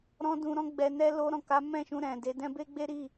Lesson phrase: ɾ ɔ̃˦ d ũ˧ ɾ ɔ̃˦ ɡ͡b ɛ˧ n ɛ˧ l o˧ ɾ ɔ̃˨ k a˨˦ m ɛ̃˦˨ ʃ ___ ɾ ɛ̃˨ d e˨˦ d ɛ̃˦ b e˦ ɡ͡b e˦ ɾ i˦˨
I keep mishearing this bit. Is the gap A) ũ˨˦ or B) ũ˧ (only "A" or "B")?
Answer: B